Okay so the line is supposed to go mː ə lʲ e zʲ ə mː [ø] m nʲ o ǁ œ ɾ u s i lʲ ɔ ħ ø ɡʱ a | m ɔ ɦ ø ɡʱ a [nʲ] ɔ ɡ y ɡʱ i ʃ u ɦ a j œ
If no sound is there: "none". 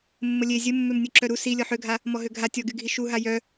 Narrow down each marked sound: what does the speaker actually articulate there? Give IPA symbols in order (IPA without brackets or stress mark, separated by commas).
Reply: ø, tʲ